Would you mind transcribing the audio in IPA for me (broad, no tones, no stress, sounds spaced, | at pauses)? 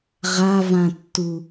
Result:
ʁ a v ã tː u